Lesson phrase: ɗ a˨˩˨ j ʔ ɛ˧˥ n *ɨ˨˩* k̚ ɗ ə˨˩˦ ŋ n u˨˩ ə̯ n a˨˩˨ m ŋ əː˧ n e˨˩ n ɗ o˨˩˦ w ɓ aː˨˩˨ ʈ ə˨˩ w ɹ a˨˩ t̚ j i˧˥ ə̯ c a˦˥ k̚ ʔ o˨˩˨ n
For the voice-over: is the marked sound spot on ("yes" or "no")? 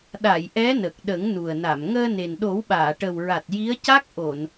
no